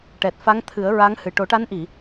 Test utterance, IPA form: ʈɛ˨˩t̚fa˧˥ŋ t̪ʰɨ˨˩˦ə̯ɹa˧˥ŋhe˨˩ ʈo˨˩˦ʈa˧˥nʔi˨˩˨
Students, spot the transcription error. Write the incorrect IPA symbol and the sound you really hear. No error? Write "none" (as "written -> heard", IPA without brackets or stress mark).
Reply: e˨˩ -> ɨ˨˩